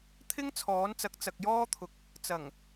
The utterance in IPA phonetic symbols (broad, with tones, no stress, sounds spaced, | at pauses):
t̪ʰ ɪ˥ ŋ t͡sʰ ɔː˨˥ n t͡s ɐ˨˥ k̚ t͡s ɐ˨ k̚ j ɔː˥ t̪ʰ ʊ˨ k̚ | t͡s ɐ˨˩ ŋ